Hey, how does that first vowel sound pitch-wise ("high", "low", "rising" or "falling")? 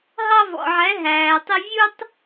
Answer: high